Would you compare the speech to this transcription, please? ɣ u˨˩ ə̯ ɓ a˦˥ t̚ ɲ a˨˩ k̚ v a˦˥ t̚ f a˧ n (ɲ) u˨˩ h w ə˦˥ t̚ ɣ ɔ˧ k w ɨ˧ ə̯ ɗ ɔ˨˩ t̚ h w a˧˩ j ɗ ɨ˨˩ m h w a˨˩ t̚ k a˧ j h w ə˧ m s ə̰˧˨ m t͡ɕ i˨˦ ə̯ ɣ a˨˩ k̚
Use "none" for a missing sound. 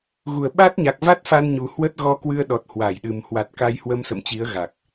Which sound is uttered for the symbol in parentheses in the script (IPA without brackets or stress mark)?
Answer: ɲ